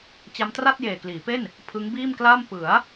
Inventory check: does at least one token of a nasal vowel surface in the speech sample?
no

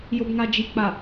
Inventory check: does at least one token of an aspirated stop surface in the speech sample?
no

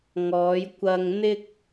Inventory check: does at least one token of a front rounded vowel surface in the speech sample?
no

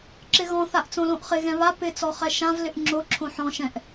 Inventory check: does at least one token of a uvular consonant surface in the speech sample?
yes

